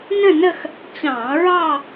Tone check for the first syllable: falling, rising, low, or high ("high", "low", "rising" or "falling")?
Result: falling